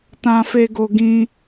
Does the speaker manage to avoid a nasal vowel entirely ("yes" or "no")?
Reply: no